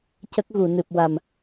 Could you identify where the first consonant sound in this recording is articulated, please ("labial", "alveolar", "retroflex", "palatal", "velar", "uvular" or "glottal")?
palatal